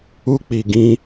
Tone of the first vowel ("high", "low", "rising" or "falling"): high